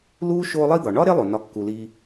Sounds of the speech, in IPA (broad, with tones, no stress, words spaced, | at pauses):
luː˥ʃoː˦ lˠi˦d̪ɒ˩ɳɒ˥ ɾe˥lˠo˩nɒ˨ kːu˩liː˨